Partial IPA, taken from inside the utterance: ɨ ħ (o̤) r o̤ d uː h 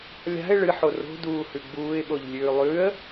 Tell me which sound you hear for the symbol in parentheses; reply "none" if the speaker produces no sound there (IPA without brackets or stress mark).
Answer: o